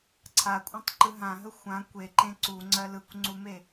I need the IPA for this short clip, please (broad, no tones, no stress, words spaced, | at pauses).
ǀʰakʷʼãtˤǃɯ ɦãɦə xʷã kʷeǃẽ ǀuŋ͡ǀɜ lɯkʷŋ͡ǀume